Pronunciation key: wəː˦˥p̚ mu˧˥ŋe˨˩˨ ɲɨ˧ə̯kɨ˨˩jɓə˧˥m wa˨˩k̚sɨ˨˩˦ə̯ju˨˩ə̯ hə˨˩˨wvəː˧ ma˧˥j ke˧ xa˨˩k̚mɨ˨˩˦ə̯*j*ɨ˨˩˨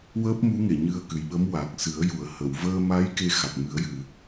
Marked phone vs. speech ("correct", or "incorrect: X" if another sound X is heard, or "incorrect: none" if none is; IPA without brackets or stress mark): correct